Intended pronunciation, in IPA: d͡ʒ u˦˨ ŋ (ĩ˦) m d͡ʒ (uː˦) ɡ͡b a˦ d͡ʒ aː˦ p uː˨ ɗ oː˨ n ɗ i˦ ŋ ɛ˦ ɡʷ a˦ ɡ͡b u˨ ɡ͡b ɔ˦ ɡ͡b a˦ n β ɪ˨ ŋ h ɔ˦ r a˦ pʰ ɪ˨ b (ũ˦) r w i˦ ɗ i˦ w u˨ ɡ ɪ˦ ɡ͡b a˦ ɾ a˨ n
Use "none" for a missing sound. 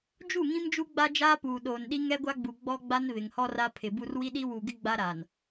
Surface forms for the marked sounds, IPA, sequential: ĩ˦, u˦, u˦

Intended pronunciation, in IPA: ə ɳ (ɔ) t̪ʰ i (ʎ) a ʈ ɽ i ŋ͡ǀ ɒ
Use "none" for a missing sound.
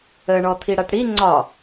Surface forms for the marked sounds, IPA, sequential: ɔ, ɽ

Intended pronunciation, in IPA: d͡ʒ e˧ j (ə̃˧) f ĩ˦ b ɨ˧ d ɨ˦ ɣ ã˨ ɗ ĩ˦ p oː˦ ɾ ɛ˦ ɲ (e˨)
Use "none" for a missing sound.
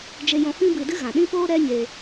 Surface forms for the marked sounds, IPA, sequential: ɔ̃˧, e˧

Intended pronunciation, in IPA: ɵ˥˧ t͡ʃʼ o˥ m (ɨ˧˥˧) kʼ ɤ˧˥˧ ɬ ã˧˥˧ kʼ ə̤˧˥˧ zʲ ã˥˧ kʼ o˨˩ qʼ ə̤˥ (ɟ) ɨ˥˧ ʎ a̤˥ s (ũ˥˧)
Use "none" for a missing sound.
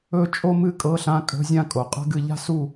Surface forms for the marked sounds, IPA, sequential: ɨ˥˧, ɡ, u˥˧

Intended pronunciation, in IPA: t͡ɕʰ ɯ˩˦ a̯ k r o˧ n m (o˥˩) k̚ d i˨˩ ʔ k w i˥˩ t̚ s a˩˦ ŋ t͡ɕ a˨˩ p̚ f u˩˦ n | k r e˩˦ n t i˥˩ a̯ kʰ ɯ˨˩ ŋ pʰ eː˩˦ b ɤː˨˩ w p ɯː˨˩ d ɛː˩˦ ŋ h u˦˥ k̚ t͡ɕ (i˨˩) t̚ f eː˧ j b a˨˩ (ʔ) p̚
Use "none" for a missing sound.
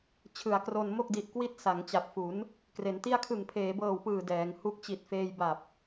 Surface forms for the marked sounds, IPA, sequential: o˥˩, i˨˩, none

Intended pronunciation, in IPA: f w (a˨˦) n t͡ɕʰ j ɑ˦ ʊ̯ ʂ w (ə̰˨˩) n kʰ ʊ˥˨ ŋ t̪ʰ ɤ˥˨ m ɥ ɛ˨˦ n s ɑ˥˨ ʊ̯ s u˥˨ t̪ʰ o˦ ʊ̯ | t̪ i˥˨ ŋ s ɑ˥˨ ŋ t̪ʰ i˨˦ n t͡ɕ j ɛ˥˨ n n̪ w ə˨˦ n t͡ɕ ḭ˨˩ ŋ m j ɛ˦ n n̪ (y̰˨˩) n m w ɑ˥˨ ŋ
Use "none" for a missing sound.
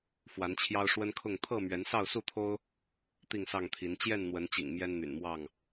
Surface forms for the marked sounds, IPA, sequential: a˨˦, ə˦, y̰˨˩

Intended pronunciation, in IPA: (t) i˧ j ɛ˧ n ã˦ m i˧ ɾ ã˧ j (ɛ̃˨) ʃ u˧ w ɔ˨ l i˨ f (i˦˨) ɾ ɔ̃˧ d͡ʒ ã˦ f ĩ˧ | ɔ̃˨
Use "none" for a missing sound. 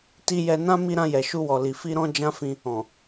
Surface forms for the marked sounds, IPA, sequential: t, ɛ˨, i˧

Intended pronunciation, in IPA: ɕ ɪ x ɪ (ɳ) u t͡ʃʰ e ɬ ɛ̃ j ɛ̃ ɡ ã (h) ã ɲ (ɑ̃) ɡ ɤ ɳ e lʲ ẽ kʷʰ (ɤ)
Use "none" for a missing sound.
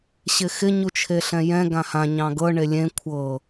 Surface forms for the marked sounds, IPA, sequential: ɲ, h, ɑ̃, ɤ

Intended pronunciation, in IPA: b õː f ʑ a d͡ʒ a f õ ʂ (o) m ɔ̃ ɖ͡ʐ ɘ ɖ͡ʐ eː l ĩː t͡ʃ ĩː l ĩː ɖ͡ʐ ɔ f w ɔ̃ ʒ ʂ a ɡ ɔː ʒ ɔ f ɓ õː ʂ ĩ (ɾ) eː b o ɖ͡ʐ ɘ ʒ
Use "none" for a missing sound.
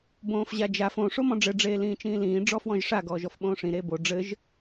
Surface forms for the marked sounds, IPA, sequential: o, ɾ

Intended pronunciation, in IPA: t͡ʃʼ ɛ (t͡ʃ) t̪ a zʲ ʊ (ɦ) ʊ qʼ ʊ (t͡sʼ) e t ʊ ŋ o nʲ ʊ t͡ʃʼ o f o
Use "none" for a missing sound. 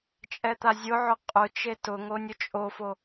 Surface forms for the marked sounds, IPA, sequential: none, ʕ, t͡ʃ

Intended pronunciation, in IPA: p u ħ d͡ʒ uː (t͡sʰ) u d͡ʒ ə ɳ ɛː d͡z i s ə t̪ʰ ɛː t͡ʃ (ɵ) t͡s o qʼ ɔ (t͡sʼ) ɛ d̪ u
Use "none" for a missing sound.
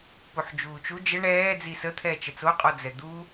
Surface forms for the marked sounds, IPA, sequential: t͡ʃ, ə, d͡z

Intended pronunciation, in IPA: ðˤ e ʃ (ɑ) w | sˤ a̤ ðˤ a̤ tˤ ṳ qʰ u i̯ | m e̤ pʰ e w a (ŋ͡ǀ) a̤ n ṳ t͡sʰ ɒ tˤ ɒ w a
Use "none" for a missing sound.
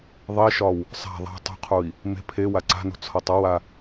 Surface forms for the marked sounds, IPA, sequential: ɒ, ǀ

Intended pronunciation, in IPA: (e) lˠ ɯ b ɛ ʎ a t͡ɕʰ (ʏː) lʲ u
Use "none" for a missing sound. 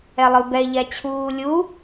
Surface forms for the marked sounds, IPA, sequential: ɛ, uː

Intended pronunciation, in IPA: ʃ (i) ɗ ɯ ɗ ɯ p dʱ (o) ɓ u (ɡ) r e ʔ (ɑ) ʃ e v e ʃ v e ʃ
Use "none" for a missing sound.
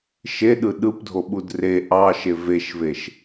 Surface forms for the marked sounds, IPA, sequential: e, o, d, ɑ

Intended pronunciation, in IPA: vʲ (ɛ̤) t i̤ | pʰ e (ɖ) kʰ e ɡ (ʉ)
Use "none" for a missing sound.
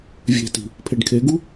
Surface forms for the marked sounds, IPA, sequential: e̤, ɖ, u

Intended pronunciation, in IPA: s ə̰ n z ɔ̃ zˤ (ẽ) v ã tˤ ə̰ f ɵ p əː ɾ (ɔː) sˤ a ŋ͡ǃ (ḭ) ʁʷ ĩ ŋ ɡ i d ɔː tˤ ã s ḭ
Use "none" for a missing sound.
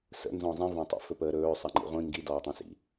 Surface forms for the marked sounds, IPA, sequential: ĩ, ɵː, ḭ

